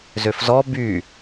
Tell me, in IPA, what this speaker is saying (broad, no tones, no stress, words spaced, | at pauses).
zøfzɔ by